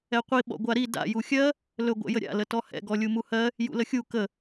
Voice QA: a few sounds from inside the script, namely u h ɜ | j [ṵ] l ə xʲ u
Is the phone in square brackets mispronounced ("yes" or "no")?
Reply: no